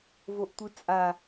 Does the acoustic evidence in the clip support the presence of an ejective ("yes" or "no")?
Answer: yes